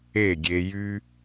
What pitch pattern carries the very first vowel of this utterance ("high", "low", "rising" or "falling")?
falling